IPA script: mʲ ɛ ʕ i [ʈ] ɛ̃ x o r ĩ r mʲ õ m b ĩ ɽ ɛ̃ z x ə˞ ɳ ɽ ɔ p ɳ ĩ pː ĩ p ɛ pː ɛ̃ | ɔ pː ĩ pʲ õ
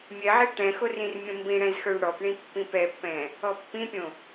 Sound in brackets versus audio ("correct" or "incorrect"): correct